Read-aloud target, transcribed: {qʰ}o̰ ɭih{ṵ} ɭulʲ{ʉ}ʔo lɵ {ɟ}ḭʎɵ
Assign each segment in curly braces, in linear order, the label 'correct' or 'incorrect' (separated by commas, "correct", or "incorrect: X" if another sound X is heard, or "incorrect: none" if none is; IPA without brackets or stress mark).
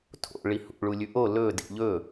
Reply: incorrect: tʰ, correct, correct, incorrect: d